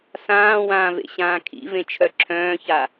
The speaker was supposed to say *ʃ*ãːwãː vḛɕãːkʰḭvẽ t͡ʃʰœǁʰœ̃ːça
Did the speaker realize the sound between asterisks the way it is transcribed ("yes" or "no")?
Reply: no